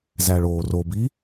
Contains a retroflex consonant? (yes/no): yes